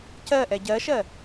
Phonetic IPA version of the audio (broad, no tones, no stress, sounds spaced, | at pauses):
c ɜ ʔ ɛ ɟ ɜ ʃ ɜ